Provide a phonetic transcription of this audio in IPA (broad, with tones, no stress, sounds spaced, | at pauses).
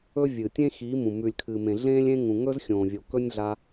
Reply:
ɵ˦ vʲ ɨː˨ tʲ ẽ˦ x iː˨˦ m ũ˨ m ʉ˨ lʲ kʰ ɨː˨ m ẽ˨ ɮ ẽː˦ lʲ ẽ˦ ŋ ũ˨ ŋ ɵ˦ z xʲ õː˨ vʲ o˨ k ɵ˦ nʲ ɮ a˧